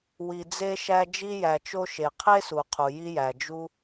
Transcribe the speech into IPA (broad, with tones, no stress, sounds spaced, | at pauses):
w i˩ d͡z e˥ ʃ æ˥ d͡ʒ i˥ j æ˩ t͡ʃ o˥ ʃ e˩ qʰ e˥ s u˩ qʰ u˩ j i˥ j æ˩ d͡ʒ u˥